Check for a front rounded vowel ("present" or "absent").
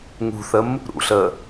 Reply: absent